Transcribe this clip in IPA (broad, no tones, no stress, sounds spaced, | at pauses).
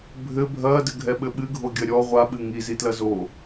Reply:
bʱ ɘ bʱ ɐː d ɘ ɡʱ ɛ ɓ ɘ ɓ ɨ ɡʱ o ɡʲ ɐ ɾʲ ɔ ʁʷ a ɓ ɨ ŋ i z i t l ɐ z o